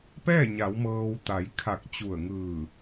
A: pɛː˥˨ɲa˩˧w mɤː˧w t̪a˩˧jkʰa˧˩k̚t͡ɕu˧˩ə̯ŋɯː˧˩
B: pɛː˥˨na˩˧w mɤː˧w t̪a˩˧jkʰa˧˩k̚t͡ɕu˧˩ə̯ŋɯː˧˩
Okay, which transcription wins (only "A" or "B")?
A